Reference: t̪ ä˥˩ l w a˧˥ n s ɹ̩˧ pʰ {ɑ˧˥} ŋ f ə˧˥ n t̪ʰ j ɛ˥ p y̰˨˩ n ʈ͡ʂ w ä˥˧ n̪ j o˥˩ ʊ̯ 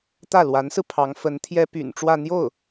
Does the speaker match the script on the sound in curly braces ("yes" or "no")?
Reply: yes